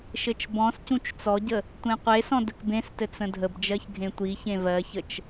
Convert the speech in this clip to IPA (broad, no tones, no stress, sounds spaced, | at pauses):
ʃ ɘ t͡ʃ b ɔ̃ s c ũ t͡ʃ t͡s ɔ ɟ ə | tʷ ẽ qʷ e s ɔ̃ d ə k b ẽ s t ɘ t͡s ə̃ dʱ ə b d͡ʒ ɜ ç ɡʱ ẽ tʷ i ç ẽ v ɜ ç ə t͡ʃ